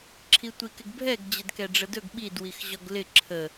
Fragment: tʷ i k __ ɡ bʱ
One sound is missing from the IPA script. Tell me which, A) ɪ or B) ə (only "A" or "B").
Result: A